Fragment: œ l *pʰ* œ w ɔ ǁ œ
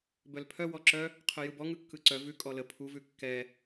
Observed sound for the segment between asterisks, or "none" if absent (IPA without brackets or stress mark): pʰ